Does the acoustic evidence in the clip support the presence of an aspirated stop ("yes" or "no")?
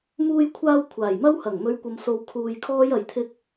yes